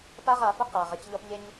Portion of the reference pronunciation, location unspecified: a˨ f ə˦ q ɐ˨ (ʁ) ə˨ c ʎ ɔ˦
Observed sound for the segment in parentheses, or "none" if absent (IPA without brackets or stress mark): ʁ